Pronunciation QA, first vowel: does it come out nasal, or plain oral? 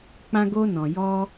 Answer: nasal